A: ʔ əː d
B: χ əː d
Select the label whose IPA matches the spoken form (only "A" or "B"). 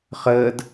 B